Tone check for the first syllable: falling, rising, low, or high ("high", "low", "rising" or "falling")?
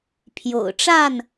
low